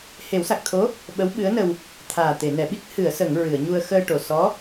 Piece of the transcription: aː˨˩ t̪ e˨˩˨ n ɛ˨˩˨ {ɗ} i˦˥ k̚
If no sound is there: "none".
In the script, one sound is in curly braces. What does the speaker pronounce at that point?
ɓ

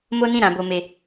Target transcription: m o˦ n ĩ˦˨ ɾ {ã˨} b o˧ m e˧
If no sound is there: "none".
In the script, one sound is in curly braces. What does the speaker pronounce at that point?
ã˧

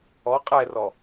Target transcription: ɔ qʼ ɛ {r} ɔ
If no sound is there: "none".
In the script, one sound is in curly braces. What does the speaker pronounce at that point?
r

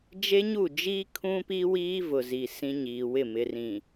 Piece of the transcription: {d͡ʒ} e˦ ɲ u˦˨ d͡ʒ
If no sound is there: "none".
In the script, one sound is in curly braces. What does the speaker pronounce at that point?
d͡ʒ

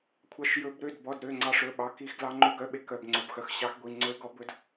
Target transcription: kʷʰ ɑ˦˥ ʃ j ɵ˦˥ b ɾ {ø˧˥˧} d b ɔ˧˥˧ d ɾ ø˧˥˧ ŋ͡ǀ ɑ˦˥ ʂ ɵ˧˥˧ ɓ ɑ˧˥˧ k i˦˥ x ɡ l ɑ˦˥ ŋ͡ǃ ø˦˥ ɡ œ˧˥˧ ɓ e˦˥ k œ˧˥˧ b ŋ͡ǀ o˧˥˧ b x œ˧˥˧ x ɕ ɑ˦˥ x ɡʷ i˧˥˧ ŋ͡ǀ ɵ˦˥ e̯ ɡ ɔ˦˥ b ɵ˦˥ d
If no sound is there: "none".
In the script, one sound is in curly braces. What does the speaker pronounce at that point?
ø˧˥˧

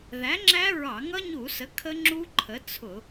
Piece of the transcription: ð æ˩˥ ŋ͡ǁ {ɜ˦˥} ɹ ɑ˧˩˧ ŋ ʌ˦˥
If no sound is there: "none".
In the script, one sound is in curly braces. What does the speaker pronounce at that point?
æ˦˥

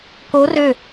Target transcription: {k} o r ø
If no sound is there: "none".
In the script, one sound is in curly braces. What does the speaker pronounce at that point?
k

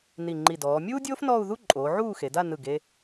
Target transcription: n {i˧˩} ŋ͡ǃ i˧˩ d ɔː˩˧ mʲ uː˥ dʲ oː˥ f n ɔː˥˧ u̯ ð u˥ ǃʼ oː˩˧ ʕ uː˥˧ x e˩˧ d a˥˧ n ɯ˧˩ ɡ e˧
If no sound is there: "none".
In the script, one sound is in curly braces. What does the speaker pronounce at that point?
i˧˩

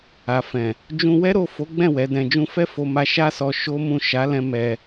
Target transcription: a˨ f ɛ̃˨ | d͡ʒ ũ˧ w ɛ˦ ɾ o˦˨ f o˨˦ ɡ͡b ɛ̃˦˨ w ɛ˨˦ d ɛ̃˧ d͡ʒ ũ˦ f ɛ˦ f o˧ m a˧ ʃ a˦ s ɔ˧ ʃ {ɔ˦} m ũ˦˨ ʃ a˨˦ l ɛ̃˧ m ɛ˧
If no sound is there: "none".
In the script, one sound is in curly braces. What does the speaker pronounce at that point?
o˦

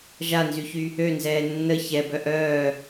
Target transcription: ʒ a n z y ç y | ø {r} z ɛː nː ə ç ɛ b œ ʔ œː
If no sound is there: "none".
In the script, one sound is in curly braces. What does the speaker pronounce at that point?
n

